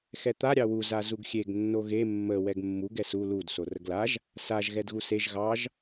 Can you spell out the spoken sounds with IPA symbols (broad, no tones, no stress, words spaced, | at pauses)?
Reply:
xɛt̪a ɾʲɑwu zazuɡxʲeɡ nːoɣe mːə wɛɡmːuɡ ɛsu lud sorəɡlaʒ | saʒ ɣɛdɣuseʒ ɣɑʒ